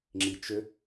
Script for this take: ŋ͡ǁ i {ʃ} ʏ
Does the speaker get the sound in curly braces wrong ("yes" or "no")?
yes